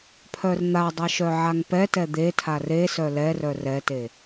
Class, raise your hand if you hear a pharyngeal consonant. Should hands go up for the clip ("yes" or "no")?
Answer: yes